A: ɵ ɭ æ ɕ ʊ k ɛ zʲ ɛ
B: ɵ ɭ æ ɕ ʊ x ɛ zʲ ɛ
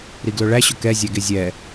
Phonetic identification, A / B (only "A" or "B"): A